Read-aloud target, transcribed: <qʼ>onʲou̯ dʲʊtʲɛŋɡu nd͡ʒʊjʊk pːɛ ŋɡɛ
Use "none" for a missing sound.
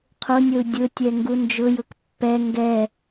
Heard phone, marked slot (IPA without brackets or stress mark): qʰ